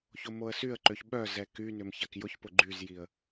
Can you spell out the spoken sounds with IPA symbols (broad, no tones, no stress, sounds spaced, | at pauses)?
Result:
ç o m o ə̯ s y ə̯ ǃ ø ç ɓ œ z ɛ k y n ʏ m ç a k j ʊ ç p ʊ ɡ͡ǃ y z j i ə̯